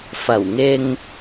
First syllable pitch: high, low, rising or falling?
low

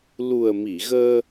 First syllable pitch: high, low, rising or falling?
low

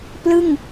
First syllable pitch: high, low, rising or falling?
falling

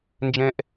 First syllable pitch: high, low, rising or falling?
high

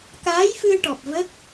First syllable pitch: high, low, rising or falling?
rising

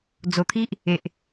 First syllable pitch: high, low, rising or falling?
low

